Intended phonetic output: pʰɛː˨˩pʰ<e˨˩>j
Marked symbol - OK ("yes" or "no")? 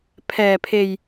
yes